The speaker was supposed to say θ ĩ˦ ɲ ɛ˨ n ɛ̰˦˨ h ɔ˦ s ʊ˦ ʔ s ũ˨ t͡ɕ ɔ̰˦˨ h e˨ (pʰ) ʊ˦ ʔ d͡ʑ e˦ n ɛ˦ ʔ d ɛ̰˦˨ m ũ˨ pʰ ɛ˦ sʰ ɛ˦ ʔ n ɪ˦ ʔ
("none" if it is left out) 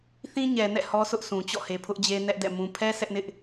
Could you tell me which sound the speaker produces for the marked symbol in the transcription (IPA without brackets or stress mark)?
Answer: pʰ